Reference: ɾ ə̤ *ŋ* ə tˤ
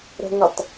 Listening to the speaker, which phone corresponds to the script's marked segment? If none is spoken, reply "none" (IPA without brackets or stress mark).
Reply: ŋ